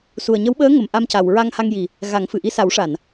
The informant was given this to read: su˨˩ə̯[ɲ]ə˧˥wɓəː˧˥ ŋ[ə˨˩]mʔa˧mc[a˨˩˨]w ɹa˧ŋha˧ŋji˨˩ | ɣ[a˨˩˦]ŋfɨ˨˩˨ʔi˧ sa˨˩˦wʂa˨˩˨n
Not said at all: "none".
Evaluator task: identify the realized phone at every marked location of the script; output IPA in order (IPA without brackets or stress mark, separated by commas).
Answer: ɲ, ə˨˩, a˨˩˨, a˨˩˦